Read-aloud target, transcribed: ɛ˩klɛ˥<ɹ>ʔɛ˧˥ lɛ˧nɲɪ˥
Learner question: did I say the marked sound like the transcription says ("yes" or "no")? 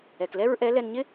yes